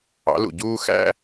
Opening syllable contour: rising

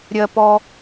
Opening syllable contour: low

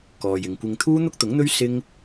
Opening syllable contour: low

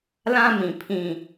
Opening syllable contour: high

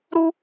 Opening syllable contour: high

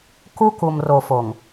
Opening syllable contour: high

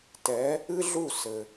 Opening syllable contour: rising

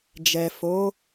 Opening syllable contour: low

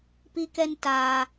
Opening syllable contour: high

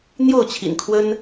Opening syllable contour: falling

